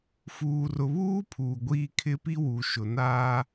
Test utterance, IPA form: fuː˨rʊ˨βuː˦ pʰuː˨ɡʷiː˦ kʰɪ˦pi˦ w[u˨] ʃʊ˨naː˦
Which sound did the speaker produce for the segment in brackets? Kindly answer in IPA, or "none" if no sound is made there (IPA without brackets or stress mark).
u˨